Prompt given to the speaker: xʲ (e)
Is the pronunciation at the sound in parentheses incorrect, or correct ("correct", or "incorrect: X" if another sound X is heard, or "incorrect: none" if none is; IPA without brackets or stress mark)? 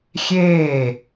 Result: incorrect: eː